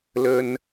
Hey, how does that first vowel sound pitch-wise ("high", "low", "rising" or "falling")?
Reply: high